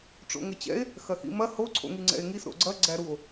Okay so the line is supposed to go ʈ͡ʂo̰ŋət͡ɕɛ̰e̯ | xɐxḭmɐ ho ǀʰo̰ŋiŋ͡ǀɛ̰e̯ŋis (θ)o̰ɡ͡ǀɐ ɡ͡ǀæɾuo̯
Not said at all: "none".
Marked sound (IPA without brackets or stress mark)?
ɾ